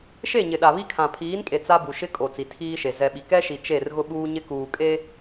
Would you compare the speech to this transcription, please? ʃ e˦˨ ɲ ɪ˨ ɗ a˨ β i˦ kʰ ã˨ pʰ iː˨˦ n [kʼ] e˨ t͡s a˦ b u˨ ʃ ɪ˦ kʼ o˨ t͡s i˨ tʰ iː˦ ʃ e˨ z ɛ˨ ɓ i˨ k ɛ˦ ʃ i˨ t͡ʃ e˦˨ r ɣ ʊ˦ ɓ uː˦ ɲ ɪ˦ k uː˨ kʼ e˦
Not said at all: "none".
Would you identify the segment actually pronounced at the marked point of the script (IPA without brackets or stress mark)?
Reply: kʼ